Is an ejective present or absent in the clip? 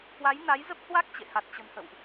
absent